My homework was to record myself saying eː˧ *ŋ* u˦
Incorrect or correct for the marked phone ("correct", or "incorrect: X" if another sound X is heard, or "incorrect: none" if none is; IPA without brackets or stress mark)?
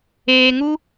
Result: correct